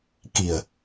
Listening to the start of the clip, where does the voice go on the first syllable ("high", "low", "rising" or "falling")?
low